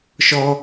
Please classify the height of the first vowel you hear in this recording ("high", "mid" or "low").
mid